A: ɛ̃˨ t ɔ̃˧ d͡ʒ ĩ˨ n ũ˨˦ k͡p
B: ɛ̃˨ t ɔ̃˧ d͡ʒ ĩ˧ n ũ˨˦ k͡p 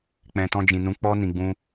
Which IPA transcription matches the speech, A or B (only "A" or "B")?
A